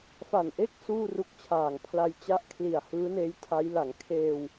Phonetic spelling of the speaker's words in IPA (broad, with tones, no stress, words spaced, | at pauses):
fa˨˩nʔe˥˩k̚ suː˥˩ru˦˥k̚t͡ɕʰaː˨˩ŋpʰla˧j t͡ɕa˦˥ʔ kʰli˨˩a̯ hɯː˦˥neː˦˥jtʰa˦˥j la˩˦ŋkʰeː˧w